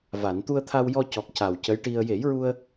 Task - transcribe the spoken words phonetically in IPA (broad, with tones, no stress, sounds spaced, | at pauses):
v a˨˩˨ n t̪ u˧ ə̯ t̪ʰ a˧ w j ɔ˧ c ɔ˨˩ k̚ c a˨˩ w c ə˧˥ j ʈ i˧ ə̯ j e˨˩˦ j ɹ u˧ ə̯